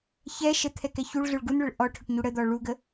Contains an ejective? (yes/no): no